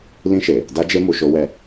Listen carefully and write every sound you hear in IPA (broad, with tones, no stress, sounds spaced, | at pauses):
l ĩ˧ ʃ e˨ | d a˦ d͡ʒ e˦ m u˧ ʃ o˦ w ɛ˦˨